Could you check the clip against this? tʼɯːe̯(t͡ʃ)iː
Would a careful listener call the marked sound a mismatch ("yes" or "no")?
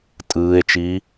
no